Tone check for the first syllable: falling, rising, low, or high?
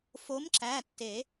rising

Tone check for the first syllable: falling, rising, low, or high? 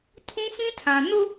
high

